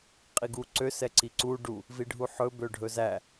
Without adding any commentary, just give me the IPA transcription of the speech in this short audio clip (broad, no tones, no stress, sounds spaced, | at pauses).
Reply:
qʼ i ɡ u ǀ ø s ɛ ǀ i ǀ u ɖ u | v i ɖʱ u ħ ɵ b ø ɖʱ ɵ z æ